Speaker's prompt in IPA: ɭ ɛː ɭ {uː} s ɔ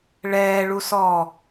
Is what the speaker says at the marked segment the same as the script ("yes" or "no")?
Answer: no